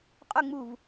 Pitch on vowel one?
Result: falling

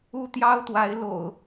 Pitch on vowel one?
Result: high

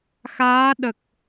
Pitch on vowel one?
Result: rising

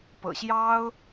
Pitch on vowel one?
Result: low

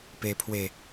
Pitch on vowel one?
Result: low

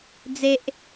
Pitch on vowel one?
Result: high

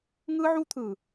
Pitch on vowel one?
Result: high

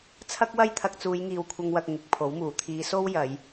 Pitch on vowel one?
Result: high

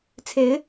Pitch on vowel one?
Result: rising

